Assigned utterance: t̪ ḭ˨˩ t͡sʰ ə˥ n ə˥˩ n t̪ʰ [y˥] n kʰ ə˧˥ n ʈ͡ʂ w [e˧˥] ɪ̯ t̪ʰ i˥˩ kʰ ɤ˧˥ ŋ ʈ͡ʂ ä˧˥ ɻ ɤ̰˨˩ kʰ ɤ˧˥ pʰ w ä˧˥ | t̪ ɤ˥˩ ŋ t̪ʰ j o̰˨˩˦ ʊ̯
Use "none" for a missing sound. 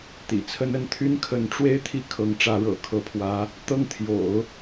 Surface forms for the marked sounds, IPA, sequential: y˥, e˥

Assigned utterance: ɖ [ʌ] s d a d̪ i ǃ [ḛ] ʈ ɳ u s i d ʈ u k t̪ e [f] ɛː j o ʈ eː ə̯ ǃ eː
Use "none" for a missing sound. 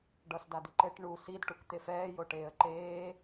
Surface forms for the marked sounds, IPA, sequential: ʌ, e, f

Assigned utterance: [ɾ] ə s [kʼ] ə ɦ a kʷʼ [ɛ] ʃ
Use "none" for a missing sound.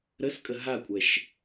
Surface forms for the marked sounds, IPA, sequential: ɾ, kʼ, ɛ

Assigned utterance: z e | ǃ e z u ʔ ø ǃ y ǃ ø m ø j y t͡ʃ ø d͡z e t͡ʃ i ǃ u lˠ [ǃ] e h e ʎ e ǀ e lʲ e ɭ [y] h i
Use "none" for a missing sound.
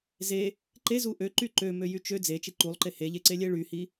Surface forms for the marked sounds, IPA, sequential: ǃ, y

